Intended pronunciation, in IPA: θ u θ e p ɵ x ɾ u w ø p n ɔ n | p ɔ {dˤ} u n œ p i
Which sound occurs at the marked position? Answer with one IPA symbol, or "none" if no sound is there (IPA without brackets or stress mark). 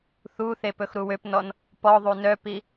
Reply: ðˤ